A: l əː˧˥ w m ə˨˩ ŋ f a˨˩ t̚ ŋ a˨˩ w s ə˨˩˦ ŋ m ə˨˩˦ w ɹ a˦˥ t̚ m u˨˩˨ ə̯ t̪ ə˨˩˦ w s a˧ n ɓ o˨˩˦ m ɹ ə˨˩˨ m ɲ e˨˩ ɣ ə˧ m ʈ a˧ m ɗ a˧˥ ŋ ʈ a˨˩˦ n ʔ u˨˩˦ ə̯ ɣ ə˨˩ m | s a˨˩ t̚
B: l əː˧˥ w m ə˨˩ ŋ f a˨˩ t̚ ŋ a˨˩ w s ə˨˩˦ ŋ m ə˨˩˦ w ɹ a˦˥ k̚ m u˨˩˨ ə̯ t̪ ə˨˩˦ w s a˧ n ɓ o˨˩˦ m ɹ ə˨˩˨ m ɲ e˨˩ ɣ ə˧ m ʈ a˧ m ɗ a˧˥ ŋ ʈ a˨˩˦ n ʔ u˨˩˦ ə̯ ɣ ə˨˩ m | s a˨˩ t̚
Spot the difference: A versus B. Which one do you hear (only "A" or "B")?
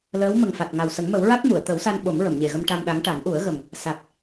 A